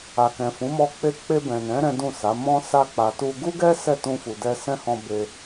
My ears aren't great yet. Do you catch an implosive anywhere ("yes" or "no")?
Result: no